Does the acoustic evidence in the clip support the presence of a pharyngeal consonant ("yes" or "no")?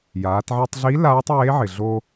yes